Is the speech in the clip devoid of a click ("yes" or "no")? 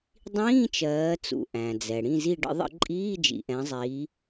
no